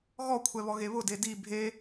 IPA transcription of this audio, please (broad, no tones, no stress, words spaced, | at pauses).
ɣɔkʷʰɛβɔɣe βʊde di bʱe